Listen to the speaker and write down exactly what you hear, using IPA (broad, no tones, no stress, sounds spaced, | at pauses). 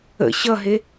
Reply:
ə̰ ɕ ʌ ɦ e